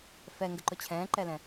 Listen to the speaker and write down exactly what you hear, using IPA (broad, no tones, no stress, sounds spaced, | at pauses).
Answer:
f ɛ ŋ ɡ ə ǃ ʊ t͡ɕʰ ɛ̃ː ǃ ɛ l ɛ̃